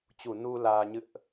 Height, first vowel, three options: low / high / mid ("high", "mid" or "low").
high